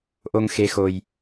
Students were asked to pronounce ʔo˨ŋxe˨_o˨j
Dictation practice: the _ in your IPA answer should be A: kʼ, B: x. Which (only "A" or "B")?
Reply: B